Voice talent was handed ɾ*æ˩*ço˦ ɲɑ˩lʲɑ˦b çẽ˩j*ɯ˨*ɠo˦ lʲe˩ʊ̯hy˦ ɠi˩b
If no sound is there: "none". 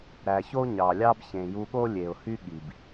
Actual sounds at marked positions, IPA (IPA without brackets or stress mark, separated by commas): æ˩, u˨